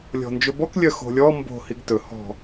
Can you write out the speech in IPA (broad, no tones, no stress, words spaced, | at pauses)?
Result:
lʲɔ̤nd͡ʒɵbɔk lʲœxo̤lʲɔ mbo̤ hiɡtɵ hɔ̤